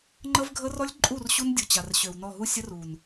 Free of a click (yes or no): no